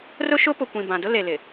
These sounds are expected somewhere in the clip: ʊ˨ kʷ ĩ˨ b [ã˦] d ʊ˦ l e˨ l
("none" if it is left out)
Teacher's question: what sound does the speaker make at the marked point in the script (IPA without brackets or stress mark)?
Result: ã˨